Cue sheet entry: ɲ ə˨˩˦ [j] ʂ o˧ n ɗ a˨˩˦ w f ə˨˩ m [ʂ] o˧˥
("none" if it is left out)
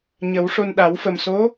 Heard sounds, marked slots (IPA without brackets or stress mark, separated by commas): w, s